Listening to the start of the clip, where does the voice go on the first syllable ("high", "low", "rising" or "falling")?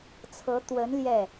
rising